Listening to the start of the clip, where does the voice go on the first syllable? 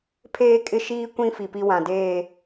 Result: high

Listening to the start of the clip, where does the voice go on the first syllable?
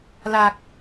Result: low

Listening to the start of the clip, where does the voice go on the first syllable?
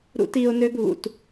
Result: high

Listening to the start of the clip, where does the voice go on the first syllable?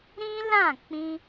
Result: high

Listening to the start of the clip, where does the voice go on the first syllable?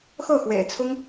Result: falling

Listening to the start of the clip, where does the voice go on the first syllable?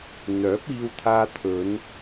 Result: rising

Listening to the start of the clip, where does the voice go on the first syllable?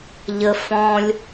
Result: low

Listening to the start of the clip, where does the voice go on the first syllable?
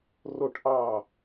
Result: falling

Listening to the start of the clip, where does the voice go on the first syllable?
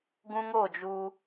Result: high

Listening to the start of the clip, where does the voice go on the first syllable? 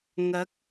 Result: rising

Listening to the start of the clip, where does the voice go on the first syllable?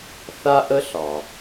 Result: high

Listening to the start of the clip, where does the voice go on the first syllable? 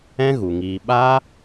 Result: high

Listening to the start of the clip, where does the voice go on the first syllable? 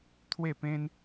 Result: falling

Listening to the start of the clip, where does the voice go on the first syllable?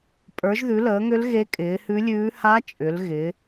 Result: rising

